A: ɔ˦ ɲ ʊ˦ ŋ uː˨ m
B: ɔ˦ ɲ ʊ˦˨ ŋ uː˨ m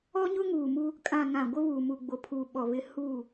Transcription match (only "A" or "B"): A